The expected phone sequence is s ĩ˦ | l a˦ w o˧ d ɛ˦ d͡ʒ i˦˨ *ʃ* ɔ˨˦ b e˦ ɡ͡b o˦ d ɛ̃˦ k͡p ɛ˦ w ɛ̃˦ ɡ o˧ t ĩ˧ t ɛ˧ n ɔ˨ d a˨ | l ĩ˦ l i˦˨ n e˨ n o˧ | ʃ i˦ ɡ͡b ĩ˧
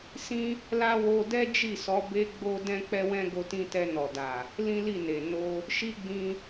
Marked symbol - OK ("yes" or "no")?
no